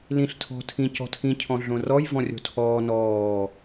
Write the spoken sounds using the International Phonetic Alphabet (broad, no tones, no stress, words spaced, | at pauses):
lĩɬ tʰɔ̤tʰĩ cɔ̤tʰĩ cʰɔ̃ɮõrɔj vɔ̃rʲo̤tʰɔː nɔː